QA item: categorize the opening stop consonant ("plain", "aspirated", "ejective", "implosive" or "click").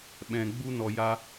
implosive